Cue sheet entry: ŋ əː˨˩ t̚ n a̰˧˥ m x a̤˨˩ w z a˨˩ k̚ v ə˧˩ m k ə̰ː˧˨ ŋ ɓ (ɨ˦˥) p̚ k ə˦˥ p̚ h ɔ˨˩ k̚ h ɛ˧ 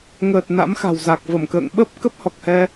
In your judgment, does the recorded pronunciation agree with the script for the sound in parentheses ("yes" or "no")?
no